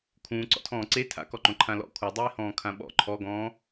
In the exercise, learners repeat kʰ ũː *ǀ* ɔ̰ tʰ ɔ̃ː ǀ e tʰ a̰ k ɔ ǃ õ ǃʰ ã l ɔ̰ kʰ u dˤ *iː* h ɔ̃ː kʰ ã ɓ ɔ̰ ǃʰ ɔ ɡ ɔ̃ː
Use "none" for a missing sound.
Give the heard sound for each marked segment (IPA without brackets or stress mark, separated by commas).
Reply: ǀ, iː